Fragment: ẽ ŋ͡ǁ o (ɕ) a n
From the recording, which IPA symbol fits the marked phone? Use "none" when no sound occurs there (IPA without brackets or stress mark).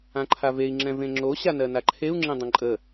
ɕ